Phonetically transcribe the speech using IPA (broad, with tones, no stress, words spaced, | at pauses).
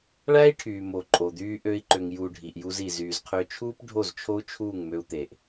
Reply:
ɭæ˦i̯ʈʰyː˨ mo˨ǃʼo˨d̪yː˧ ʔø˧i̯ǃø˨ŋjuː˨ ɖʱi˨ʔju˧zi˨ zyː˨zqʰø˧ t͡ʃʰuː˦pɖʱo˦˨z t͡ʃʰo˦u̯t͡ʃʰuː˦˨ŋ mø˧u̯t̪e˨ʔ